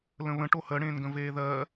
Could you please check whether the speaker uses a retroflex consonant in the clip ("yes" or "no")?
yes